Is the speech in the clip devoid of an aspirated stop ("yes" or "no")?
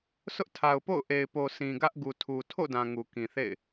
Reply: no